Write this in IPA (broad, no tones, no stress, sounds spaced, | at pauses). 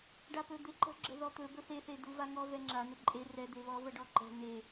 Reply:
ɖ a p ɵ d̪ e ǃ ə̤ ɡ͡ǁ ə̤ ð ɔ t̪ ɵ b ɵ θ e θ e d u v a ŋ ɔ v ɛ ŋ͡ǁ a n̪ ə ǃʼ e r ɛ d̪ e β ɔ v ə ɖ ɔ ǃ ɛ̤ n e